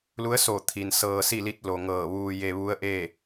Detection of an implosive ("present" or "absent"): absent